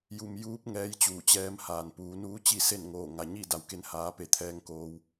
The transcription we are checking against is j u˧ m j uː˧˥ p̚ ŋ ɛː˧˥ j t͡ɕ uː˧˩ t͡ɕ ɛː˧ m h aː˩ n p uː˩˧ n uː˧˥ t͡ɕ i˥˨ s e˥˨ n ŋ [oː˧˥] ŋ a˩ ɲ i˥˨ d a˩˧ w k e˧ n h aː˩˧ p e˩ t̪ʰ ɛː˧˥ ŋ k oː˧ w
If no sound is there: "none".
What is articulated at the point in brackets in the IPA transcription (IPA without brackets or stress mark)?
oː˧˩